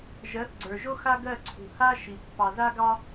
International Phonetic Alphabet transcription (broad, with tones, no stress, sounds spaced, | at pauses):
ʒ ɜ˨˦ θ ɡ͡ǀ ə˞˨ ʒ o˦ x a˦ ɡ ɜ˦˨ ǀʰ ṳ˨ h a˦ ʃ i˨ pː ɑ˨ z a˦ ɡ ɑ˦